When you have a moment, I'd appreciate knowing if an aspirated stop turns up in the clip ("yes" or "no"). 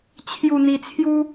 yes